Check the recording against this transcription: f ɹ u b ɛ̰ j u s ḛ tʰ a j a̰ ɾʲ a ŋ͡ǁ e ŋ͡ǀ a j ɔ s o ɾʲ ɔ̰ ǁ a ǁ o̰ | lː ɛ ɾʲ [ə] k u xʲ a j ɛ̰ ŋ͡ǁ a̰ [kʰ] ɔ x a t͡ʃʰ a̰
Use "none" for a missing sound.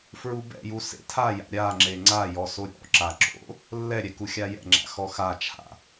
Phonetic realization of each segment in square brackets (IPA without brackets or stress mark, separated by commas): ɛ, x